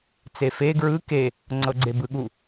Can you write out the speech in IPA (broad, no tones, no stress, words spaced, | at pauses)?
t͡sefe ɡɹɯ ke | ŋ͡ǀɤɡ͡ǀebɯɠu